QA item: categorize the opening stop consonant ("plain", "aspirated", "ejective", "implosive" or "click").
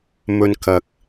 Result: plain